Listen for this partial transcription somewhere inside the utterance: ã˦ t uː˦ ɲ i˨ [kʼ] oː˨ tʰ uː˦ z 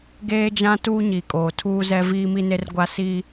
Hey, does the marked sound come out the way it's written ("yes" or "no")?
yes